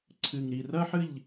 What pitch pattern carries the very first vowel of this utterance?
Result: low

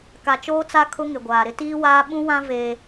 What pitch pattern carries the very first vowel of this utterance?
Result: low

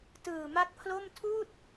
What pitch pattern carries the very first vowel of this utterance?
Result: low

